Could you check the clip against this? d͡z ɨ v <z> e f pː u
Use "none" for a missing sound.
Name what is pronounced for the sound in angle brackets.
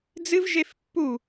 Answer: ʒ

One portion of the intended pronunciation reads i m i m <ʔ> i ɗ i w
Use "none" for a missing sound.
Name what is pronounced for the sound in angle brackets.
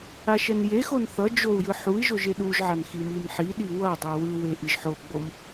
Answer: ħ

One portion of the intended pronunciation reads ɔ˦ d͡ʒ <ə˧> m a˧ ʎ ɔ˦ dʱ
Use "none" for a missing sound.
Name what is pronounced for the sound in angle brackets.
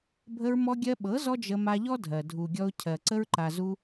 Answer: ə˧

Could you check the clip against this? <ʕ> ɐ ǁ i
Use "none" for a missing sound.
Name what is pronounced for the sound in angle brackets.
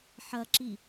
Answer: ħ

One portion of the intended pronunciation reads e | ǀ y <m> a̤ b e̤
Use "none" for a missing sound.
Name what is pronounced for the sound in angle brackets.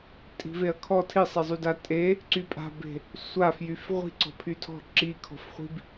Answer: pʼ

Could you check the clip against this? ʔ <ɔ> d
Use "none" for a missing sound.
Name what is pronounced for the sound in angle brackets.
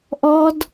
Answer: ɔ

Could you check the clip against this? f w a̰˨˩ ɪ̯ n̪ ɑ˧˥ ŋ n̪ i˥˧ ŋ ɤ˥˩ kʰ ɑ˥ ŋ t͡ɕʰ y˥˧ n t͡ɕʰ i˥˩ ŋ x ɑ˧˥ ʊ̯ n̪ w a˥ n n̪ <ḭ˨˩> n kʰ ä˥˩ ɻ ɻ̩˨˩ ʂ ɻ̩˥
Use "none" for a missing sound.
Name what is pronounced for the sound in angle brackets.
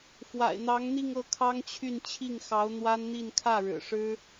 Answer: i˥˧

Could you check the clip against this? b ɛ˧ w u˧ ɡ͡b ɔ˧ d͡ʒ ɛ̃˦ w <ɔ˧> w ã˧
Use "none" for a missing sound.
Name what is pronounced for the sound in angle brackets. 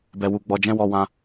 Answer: ɔ˧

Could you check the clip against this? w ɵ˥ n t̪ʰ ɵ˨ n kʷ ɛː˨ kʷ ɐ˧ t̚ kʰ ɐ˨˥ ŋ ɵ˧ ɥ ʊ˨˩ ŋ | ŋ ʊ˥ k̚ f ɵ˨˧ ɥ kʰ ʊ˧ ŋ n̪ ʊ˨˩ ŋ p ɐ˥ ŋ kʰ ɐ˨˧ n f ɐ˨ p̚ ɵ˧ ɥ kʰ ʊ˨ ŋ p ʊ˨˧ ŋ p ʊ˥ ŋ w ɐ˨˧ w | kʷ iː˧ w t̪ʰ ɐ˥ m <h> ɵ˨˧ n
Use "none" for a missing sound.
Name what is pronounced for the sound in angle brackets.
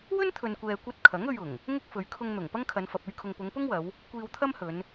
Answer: h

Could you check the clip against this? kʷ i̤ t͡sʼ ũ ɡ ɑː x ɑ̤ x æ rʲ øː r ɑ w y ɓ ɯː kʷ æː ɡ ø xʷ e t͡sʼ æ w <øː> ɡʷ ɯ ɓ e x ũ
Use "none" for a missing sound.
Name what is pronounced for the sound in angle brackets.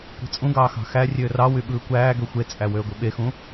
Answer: øː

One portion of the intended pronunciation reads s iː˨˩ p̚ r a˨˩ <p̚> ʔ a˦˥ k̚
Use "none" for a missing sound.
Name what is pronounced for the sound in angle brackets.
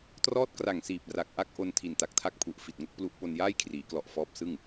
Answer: k̚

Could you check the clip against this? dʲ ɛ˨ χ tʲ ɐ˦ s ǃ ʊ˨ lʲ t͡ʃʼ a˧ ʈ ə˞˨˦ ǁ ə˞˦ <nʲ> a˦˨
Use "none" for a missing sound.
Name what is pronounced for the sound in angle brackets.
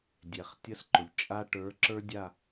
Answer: dʲ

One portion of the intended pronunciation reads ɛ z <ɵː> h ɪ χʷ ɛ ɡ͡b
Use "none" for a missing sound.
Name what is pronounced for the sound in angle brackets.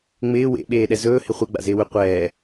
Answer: ɵː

